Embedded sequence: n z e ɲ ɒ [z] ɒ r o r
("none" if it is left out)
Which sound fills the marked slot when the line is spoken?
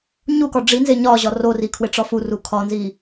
ʑ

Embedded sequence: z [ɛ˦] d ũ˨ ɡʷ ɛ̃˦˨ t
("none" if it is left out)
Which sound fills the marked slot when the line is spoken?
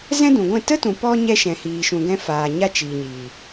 ɛ̃˦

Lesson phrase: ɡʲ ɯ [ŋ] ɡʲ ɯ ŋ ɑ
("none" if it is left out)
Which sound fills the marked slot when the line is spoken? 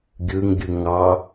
ŋ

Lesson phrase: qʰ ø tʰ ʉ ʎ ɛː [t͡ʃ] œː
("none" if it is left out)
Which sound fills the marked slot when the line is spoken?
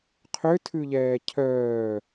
cʰ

